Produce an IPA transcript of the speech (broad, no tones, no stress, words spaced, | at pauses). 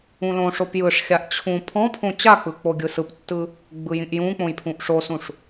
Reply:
ũlõʂop jɯʂxʲaʔ t͡ɕʰũ pʰɔ̃pʰõ t͡ɕak͡pɯ k͡poɡʲɯsɯptːɯ | ɡ͡bɯjĩʔjũk͡põj pʰũʔʂosũʂ